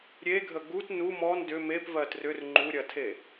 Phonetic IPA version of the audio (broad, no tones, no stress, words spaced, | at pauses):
ɾʲeɡʱə ɡut nu mɔn dʏ mepvɜ trʏr ŋ͡ǃuɾʲɐtʰe